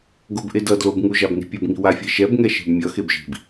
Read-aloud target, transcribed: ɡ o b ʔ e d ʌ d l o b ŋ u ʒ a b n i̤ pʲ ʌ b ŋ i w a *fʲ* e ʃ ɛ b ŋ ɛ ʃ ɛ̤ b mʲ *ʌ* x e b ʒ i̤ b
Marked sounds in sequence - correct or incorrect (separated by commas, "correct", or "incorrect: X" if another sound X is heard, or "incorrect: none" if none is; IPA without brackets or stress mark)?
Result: correct, correct